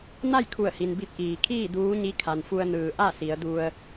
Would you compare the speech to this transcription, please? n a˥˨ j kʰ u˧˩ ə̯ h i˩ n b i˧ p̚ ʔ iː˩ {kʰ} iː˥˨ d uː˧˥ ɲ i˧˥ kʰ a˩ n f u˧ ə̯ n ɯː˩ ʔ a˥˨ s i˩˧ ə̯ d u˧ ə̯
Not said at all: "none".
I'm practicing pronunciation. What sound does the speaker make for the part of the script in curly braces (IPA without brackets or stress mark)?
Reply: kʰ